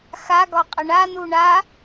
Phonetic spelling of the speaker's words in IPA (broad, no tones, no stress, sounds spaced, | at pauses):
x a ɡ ɒ qʼ ə ɳ a n u ɳ a